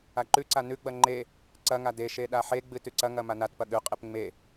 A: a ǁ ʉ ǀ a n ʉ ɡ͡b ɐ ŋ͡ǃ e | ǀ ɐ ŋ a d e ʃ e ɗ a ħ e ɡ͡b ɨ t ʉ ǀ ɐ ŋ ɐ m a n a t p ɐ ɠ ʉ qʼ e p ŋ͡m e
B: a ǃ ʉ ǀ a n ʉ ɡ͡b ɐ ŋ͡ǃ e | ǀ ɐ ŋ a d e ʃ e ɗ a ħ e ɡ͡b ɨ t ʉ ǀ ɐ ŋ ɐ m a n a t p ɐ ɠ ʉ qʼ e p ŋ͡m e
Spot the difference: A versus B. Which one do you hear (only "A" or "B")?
B